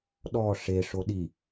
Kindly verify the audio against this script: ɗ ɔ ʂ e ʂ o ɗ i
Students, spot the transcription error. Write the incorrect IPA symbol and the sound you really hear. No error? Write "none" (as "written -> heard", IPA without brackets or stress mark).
none